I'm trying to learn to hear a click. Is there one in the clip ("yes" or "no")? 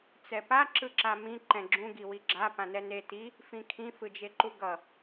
yes